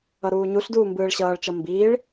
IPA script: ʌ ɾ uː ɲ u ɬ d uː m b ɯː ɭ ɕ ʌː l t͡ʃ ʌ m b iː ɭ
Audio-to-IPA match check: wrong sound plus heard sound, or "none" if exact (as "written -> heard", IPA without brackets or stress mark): l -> ɭ